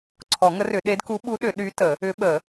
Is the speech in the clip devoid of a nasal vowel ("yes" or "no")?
yes